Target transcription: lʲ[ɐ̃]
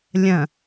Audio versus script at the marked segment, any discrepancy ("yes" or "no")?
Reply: no